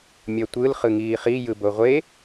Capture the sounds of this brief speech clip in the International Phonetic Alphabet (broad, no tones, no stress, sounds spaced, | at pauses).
mʲ ʌ tʷ ɯ l χ ɯ ŋ iː χ i j ɯ b o ʁʷ e